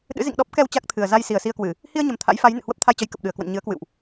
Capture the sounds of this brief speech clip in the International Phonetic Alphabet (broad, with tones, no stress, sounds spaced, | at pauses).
ɗ ɨ̰˧˥ z ḭ˧˨ ŋ ɗ ɔ˦˥ p̚ k ɛ˧ w t͡ɕ a˦˥ k̚ t̪ʰ ɨ˨˩ ə̯ z a˧ j s i˨˩ ə̯ s i˧ ə̯ k w ɨ˧˩˨ | h i˧ ə̯ ɲ ə˨˩ m t̪ʰ a̰˧˥ j f a˨˦ j n ɨ̰˧˨ h w ə˦˥ p̚ t̪ʰ a˧ j t͡ɕ ə˨˦ j k ə˨˩ p̚ ɗ ɨ˨˩ ə̯ k w ə̰˧˨ n ɲ ɨ˨˦ ə̯ k w ɨ̰˧˨ w ʔ